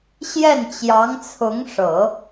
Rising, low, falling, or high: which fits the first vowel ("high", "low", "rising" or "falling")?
falling